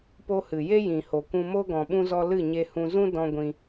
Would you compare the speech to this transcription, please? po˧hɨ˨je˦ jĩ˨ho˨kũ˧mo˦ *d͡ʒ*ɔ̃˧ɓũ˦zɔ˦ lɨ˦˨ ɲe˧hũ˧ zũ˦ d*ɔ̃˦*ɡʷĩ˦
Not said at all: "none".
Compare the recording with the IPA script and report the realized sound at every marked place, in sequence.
ɡ, ɔ̃˦

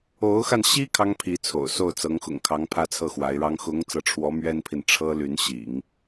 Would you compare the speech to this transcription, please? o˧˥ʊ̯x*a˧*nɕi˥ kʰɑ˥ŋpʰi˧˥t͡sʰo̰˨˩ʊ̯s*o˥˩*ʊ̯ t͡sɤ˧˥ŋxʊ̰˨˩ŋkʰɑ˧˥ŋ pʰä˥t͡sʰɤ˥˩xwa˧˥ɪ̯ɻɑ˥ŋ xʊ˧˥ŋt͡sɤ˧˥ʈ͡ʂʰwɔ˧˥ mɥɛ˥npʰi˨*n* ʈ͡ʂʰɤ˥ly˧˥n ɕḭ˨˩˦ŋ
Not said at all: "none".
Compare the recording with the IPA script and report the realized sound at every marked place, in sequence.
a˧, o˥˩, n

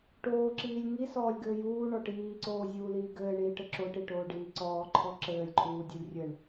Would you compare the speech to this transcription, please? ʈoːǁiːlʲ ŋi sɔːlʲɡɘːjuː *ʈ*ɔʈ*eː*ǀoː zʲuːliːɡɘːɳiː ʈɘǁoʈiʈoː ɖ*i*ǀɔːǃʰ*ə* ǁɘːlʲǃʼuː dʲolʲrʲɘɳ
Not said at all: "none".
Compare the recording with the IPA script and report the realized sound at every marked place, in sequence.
ɳ, iː, iː, ɔ

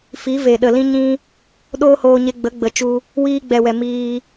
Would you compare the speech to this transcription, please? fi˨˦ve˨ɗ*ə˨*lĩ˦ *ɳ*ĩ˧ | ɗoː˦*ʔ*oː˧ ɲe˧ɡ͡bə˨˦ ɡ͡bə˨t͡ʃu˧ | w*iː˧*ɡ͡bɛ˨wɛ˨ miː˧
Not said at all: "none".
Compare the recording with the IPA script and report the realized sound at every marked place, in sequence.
ə˨, ɲ, h, iː˧

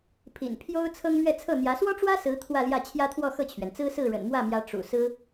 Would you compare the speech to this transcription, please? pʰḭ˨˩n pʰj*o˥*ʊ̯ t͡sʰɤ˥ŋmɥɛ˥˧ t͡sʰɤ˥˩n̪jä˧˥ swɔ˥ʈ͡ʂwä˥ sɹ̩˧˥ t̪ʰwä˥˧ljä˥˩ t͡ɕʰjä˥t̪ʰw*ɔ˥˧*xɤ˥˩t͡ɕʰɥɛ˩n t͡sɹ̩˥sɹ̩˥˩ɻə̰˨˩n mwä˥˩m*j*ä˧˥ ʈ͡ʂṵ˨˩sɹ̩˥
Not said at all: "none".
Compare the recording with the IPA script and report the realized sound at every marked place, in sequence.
o˥, ɔ˥˧, j

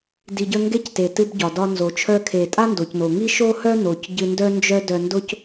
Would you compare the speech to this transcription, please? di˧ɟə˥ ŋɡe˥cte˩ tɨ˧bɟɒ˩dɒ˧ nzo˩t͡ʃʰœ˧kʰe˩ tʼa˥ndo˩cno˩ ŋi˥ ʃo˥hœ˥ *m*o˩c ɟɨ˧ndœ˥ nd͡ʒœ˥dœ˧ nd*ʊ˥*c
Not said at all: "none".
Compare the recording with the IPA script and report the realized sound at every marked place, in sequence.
n, ʊ˥

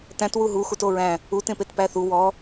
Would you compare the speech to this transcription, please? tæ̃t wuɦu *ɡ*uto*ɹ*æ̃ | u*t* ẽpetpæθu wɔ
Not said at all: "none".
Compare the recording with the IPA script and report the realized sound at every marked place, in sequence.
x, ɹ, t

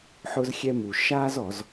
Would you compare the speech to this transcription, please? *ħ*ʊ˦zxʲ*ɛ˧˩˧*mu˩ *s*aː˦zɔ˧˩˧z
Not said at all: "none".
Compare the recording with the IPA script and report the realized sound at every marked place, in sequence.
ħ, ɛ˦, ʃ

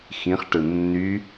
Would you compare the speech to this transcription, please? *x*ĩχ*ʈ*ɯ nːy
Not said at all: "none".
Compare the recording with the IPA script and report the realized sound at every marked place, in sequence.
x, ʈ

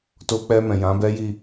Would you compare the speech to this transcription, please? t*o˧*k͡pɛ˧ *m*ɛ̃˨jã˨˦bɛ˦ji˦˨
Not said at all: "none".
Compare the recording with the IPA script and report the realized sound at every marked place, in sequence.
o˧, m

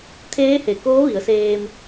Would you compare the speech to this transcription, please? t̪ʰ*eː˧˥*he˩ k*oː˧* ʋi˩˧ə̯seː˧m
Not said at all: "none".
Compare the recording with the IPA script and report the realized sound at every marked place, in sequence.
eː˧˥, oː˧˥

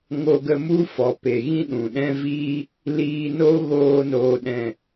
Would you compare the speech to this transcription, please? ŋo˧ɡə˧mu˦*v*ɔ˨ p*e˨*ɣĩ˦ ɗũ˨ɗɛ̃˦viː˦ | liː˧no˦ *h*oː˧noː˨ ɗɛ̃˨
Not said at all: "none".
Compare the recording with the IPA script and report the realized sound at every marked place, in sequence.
f, e˨, ɣ

